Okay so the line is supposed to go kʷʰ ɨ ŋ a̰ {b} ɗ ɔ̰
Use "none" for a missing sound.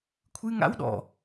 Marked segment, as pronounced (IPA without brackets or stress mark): w